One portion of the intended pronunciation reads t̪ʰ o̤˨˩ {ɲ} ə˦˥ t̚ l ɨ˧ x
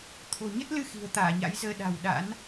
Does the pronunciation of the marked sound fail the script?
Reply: no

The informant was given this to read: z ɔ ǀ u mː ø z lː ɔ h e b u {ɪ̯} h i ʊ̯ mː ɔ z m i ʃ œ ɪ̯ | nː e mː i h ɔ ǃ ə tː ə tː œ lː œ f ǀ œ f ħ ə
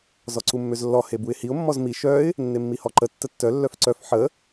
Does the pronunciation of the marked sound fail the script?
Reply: no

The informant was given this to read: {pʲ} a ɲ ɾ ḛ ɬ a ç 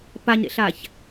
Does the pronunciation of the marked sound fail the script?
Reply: yes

